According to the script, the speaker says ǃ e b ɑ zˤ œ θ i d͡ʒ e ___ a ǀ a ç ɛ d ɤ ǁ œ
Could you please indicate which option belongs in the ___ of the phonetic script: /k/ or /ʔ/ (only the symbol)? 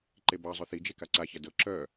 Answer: k